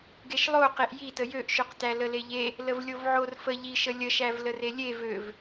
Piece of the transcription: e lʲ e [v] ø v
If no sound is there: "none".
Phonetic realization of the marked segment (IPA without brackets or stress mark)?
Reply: v